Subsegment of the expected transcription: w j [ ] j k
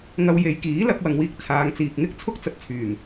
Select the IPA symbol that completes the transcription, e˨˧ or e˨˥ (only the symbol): e˨˧